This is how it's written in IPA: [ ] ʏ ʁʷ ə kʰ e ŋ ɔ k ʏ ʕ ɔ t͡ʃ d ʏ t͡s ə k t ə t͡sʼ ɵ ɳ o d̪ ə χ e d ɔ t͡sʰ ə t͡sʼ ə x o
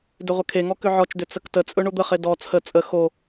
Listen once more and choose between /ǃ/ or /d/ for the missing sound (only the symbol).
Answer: d